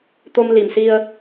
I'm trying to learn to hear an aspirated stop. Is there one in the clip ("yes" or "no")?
no